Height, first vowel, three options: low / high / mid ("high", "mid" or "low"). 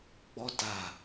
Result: mid